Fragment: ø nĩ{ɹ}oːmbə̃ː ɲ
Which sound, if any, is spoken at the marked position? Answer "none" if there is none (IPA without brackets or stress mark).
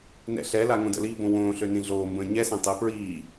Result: ɮ